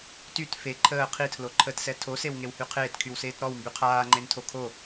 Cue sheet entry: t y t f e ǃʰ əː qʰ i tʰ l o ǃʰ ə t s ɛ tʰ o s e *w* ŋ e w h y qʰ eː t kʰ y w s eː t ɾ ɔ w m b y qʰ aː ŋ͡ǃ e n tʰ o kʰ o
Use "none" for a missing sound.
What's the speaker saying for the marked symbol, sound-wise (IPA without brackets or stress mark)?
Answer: w